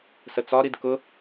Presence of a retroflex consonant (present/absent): absent